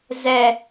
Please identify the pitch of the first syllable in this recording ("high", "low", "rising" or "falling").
low